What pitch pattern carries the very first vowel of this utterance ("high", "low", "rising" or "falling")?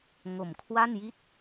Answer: low